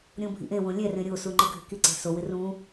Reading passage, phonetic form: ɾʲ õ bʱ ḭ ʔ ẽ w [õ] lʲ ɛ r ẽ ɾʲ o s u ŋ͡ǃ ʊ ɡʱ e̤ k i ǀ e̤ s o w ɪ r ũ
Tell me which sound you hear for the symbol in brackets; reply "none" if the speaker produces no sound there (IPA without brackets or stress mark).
õ